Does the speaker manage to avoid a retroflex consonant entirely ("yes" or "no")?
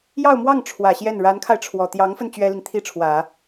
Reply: no